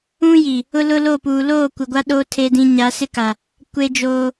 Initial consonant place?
palatal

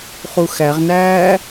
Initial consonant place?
uvular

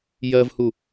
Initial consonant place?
palatal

